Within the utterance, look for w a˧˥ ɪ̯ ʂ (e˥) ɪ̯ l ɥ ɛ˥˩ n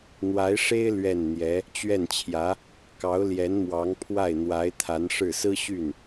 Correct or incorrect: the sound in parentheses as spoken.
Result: correct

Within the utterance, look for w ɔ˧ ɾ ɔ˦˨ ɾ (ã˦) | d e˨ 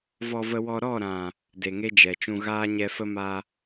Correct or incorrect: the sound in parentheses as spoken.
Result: incorrect: ã˨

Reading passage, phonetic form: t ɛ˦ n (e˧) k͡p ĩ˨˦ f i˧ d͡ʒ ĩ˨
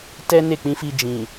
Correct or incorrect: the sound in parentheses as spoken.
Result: incorrect: e˦˨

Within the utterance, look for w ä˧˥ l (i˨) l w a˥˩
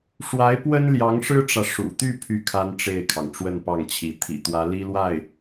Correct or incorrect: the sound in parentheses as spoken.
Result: incorrect: i˥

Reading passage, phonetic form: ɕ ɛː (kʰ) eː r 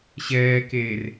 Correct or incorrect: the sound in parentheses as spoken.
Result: incorrect: k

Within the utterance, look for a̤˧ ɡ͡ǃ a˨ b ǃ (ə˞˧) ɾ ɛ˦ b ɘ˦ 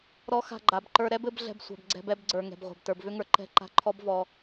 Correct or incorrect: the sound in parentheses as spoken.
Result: correct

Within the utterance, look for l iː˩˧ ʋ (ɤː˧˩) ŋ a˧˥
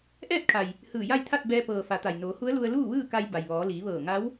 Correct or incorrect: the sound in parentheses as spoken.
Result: correct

